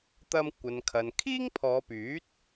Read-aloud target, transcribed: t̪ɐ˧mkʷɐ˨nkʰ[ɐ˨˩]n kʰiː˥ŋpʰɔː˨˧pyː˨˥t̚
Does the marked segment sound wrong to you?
yes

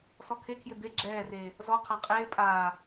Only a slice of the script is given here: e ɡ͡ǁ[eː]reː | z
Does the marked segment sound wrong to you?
yes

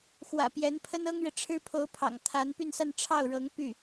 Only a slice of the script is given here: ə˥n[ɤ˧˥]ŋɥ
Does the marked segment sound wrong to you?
yes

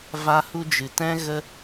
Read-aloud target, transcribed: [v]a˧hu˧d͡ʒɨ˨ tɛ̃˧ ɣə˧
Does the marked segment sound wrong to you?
no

